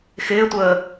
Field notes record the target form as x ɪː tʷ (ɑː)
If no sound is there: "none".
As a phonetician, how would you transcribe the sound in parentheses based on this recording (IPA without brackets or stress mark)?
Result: əː